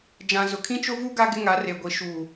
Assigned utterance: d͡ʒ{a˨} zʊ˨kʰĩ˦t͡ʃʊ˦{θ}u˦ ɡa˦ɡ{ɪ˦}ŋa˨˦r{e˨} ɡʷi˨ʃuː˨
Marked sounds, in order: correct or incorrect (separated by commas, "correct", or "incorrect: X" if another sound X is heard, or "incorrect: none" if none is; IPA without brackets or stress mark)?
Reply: incorrect: ã˨, incorrect: v, correct, correct